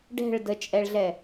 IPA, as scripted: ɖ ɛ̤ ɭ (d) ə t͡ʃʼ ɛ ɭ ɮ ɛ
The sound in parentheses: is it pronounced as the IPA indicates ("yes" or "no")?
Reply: yes